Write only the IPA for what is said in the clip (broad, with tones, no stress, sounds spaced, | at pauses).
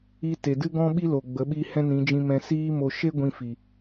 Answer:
i˧ t e˨ d ɨ˦ ɡ ɔ̃˦ ɓ i˦ l o˨ ɡ͡b ə˨˦ ɓ i˧ h ɛ̃˦ n ĩ˨˦ d͡ʒ ĩ˧ m ɛ̃˨ s iː˧ m o˨ ʃ e˦ ɡʷ ĩ˧ f i˨